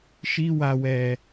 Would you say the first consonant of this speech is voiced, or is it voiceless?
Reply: voiceless